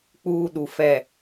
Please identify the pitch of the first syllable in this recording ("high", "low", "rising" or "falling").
high